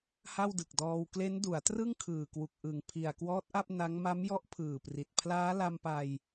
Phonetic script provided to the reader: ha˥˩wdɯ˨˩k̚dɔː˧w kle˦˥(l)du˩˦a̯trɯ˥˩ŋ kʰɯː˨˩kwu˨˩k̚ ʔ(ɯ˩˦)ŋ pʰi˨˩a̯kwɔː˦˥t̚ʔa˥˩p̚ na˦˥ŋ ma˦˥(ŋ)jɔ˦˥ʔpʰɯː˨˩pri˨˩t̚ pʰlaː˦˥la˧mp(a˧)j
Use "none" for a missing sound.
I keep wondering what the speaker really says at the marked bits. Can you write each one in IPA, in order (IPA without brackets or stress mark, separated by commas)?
n, ɯ˨˩, m, a˧